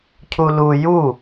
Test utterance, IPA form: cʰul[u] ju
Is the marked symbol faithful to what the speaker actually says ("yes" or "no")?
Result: yes